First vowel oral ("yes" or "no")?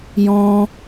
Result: no